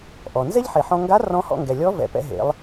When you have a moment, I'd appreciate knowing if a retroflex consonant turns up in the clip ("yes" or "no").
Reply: no